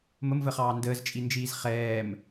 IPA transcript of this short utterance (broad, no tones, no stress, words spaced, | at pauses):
məmvəχɑː ndəːzt͡ʃʼind͡ʒiːz χɛːm